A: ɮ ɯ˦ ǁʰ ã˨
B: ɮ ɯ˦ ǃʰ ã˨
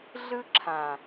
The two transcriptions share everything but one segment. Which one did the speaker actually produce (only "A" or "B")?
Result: A